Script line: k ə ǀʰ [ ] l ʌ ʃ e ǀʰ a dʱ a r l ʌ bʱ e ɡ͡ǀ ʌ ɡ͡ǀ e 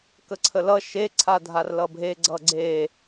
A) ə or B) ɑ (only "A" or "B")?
A